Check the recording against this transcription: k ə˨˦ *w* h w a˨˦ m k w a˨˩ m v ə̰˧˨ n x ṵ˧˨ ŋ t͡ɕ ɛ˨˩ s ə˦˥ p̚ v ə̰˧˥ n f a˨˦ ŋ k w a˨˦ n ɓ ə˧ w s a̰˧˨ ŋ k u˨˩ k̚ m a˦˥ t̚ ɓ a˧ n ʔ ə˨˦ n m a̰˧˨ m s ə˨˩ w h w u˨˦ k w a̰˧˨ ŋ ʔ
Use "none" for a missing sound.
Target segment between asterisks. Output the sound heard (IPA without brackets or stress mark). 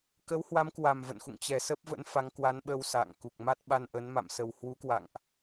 w